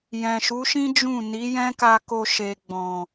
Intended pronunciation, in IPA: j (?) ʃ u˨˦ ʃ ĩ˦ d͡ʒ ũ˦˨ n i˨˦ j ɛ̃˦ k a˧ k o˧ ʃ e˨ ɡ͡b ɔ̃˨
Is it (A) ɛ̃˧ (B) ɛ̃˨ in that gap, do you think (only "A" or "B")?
B